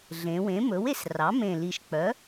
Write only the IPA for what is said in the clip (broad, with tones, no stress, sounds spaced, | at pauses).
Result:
ɮ ẽ˩˧ w ẽ˩˥ m ɵ˩˥ w e˩˧ s r ɑ˩˥ m ẽ˨˩ l i˨˩ ʃ k͡p œ˩˥